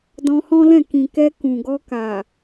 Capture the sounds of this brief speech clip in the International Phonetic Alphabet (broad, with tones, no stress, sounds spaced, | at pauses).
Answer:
d ɔ̃˧ h ɔ̃˦ l ɛ̃˦˨ k ĩ˨ k ɛ˧ k ũ˨ ɡ ɔ˧ k a˨